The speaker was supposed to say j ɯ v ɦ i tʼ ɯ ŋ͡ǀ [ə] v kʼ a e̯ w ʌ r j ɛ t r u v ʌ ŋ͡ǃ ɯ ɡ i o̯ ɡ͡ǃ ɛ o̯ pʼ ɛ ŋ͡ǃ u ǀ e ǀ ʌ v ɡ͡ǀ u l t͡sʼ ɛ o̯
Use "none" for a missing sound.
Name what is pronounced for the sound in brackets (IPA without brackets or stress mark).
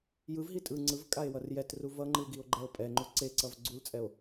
ɯ